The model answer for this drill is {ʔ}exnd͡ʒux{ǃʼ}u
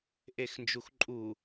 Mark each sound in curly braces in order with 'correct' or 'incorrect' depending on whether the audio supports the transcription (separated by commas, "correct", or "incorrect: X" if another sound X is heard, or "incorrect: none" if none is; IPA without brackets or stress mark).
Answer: correct, correct